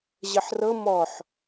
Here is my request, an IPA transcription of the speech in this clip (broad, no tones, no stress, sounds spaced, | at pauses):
ʑ ə ħ r ɤ m ɔ ħ